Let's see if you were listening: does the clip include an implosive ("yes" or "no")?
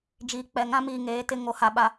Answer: yes